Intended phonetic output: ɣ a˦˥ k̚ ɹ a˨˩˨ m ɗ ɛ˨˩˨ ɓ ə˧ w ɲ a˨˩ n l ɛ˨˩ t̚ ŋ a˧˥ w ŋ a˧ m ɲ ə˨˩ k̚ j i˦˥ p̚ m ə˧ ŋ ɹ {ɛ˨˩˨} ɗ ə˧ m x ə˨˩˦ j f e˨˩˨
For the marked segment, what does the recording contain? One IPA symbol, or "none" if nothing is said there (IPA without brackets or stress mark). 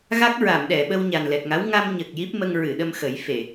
ɨ˨˩˨